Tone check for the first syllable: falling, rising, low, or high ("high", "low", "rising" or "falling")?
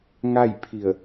falling